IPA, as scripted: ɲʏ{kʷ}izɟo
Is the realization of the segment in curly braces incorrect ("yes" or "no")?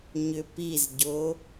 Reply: yes